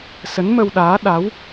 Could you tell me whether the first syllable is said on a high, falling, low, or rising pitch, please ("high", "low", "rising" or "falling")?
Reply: rising